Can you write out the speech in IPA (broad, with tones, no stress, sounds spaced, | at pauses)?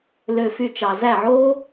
l ø˧ f y˧ t͡ʃ ɑ˨ z æ˦˨ ʕ oː˦